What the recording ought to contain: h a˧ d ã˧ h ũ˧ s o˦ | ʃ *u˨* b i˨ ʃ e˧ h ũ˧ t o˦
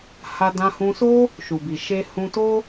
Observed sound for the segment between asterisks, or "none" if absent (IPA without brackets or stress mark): u˨